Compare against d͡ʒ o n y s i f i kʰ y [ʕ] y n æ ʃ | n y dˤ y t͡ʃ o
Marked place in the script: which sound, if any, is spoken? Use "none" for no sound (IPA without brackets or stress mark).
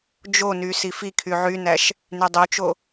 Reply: ʕ